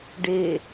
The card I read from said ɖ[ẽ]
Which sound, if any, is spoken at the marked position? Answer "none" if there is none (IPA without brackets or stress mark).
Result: e